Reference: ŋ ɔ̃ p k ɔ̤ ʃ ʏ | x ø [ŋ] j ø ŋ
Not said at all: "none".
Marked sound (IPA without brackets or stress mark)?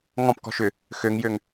ŋ